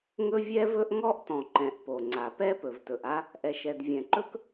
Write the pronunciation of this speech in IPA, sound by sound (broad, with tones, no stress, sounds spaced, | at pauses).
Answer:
ŋ ɵ˥ vʲ ɛ˥ v ɵ˥ ʔ ŋ ɔ˥ ʔ t ɔ̃˩ ǃ ɛ̃˩ ʔ p o˩ ŋ͡ǀ a˩ p ɛ˥ p ɵ˩ v t ɵ˩ ʔ a˥ | ʔ ɛ˩ ʃ ɛ˩ d vʲ ɛ̃˩ ǃ ɵ˥ k